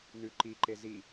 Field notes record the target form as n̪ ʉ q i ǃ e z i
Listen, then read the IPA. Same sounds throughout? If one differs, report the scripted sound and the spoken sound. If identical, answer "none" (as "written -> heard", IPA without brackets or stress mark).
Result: q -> ǃ